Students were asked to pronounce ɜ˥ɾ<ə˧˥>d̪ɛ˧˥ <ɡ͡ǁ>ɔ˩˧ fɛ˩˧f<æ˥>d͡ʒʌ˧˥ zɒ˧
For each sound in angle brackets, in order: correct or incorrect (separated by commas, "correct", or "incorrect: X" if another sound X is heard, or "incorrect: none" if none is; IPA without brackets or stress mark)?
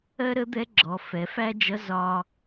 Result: correct, correct, correct